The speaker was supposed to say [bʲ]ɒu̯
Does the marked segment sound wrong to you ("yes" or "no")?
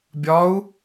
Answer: no